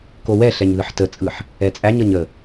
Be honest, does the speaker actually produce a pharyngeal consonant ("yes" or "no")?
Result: yes